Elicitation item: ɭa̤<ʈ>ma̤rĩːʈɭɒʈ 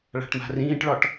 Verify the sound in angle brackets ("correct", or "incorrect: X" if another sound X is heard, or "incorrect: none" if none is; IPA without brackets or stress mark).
correct